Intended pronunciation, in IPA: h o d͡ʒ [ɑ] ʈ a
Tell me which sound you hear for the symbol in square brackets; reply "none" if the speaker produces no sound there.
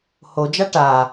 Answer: a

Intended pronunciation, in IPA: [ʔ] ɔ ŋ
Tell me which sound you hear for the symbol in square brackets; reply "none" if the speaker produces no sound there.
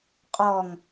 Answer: qʼ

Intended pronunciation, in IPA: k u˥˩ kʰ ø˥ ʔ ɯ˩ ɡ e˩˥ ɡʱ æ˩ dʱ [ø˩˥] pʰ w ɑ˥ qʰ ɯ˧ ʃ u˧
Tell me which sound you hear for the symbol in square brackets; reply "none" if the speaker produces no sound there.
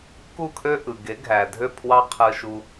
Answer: ø˥˩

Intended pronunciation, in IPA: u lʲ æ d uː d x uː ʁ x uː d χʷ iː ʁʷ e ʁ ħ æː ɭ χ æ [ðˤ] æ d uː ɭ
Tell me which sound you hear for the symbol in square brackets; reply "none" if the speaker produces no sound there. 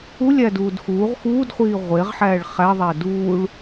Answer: ðˤ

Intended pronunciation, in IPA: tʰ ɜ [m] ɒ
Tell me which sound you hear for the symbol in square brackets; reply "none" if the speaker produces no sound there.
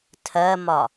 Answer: m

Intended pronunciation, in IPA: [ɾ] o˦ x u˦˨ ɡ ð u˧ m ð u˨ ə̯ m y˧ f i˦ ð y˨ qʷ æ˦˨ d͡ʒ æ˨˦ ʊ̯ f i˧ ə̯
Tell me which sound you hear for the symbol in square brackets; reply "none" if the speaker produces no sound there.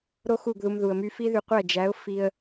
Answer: ɾ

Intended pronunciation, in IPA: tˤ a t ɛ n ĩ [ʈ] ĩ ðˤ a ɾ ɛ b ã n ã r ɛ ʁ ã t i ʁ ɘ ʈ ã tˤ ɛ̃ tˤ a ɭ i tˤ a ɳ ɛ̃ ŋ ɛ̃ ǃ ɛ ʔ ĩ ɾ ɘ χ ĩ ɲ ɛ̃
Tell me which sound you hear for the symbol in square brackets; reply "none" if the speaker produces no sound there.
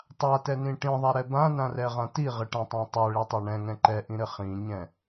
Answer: ʈ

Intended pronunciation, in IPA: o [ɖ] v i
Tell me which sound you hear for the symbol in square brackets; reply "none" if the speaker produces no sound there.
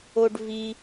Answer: ɖ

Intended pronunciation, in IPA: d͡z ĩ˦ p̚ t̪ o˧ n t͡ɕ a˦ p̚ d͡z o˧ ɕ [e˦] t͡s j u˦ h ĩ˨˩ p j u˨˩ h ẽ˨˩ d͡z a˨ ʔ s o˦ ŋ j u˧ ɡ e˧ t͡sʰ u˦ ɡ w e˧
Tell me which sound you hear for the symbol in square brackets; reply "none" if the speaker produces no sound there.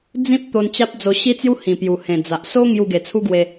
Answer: i˦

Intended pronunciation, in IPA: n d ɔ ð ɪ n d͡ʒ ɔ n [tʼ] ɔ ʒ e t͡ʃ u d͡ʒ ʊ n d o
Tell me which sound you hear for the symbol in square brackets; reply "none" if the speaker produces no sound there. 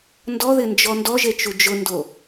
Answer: d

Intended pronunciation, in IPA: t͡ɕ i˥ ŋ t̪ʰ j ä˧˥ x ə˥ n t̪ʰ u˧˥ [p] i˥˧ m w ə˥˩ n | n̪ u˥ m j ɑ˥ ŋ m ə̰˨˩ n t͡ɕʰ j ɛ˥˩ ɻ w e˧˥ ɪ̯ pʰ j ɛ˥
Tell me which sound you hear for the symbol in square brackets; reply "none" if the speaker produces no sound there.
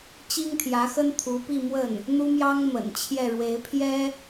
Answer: p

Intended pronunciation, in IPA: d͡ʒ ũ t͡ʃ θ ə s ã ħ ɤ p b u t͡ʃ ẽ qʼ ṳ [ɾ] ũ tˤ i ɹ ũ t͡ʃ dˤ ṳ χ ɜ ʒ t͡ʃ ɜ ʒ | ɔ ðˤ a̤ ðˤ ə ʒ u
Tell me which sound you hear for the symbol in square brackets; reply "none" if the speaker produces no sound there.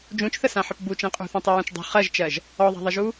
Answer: θ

